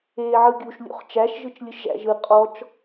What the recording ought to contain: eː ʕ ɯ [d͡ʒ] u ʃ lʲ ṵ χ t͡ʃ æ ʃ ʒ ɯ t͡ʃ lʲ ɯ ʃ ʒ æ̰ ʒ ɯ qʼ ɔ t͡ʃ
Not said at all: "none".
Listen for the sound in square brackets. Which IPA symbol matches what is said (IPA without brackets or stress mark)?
ɡʲ